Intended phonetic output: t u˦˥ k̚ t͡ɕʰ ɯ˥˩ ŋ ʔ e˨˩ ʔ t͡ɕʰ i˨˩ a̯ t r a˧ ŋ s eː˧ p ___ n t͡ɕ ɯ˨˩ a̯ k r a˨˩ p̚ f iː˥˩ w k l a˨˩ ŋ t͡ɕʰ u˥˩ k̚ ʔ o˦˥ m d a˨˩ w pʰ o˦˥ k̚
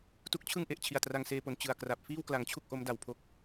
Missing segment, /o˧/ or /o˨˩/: o˨˩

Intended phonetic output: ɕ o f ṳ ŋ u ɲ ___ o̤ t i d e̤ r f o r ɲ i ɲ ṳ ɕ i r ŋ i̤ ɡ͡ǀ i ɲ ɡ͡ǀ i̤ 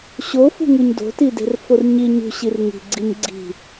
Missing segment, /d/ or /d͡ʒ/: d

